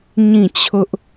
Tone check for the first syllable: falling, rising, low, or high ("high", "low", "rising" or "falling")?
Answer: falling